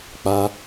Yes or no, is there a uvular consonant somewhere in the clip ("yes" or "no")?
no